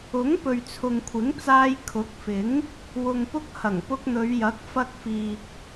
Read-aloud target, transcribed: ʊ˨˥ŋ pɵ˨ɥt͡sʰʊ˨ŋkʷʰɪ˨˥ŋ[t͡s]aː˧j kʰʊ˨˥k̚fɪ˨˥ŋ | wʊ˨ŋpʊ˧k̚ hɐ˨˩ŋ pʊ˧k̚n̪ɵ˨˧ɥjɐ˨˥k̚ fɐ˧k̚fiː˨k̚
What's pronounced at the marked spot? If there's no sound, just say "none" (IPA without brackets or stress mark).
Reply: t͡s